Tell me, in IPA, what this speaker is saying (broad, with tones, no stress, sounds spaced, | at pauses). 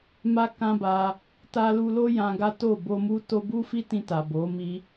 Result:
m a˦ k ã˦ b a˧ | t a˧ l u˧ l o˦ j ã˧ ɡ a˦ t o˦˨ b o˧ m u˦ t o˦ b u˦ f i˦ t ĩ˧ t a˨ b o˨˦ m i˦